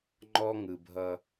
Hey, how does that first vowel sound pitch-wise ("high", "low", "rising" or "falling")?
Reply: high